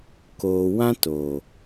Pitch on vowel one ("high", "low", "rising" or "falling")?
low